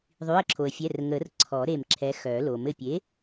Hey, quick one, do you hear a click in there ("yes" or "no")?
yes